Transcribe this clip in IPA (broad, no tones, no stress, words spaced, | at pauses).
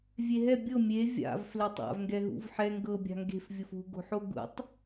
vʲeɦɛ bʲɤ mʲe vʲa̰v fletˤa̰v ŋɡɛɦṵvħɛ ŋɡɤ bʲa̤ŋɡe̤f vʲʊfṳ ɡo̤ħoɡṵtˤ